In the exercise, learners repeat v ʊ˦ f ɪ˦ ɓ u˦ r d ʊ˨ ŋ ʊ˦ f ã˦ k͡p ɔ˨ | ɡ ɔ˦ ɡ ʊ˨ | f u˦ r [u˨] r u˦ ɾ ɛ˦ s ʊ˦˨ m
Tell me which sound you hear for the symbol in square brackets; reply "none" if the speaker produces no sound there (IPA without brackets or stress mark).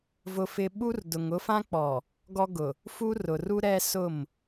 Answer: ʊ˨